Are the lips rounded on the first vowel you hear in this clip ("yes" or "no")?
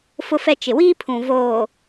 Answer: yes